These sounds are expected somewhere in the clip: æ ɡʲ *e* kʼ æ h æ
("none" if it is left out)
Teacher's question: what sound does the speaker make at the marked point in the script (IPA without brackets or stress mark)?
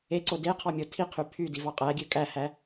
ø